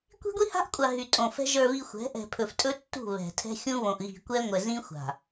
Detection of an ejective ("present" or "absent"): present